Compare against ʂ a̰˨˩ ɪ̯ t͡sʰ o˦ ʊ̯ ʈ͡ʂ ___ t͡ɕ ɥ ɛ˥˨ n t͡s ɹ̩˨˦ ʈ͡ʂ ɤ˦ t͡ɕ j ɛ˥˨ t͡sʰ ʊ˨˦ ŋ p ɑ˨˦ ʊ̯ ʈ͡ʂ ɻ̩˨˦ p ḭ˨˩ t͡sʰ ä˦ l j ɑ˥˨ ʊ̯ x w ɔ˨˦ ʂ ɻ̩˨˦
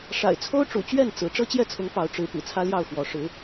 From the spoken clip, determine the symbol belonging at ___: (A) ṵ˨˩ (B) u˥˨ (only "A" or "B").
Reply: A